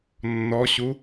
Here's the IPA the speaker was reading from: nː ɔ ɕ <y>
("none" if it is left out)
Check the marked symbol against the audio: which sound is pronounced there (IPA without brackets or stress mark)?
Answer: u